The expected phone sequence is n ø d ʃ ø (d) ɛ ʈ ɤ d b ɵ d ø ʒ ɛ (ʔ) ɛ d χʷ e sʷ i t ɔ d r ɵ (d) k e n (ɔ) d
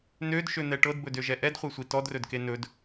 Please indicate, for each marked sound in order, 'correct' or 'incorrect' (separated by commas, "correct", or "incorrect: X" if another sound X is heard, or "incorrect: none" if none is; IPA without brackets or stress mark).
incorrect: n̪, correct, correct, incorrect: ɵ